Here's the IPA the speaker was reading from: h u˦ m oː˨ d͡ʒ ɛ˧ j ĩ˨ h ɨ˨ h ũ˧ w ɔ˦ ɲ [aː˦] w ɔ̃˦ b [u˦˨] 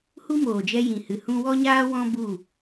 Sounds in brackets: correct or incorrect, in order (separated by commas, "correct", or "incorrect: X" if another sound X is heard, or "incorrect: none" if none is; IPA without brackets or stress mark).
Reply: correct, correct